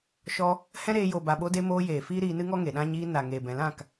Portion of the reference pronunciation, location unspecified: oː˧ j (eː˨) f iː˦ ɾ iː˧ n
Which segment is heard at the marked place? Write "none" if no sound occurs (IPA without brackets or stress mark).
eː˨